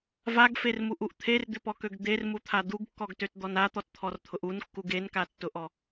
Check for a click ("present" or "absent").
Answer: absent